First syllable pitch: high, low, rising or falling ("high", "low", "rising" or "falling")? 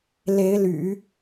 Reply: rising